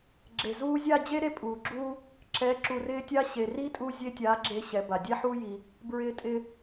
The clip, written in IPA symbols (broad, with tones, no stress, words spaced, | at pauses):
ɡ͡ǁe˨zuː˧zʲa˦˨ d͡ʑe˦ɾe˦˨ pʼuː˨ɡ͡ǁuː˦ | ǁɛː˨˦ǁu˨rɪː˧ tʲa˧ ɕe˨ri˦ tʼu˧zʲe˧tʲa˨˦ ɡ͡ǁe˦ɕɛ˨˦ba˨ dʲɛ˦ħuː˦ ji˧ | bɹɪː˧ tʼɪ˧